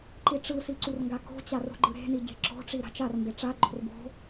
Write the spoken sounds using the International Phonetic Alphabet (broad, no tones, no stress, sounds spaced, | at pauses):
ǃ i ʈ͡ʂ ɯ s i ǀ u r ŋ ɡ a k o̤ t͡ɕ a r o̤ ɡ͡ǃ ɯ ɾ e̤ n i ɟ e̤ ǁ o̤ ʈ͡ʂ i ɾ a̤ t͡ʃ a r m b e ʈ͡ʂ a ɡ͡ǃ o̤ r b o̤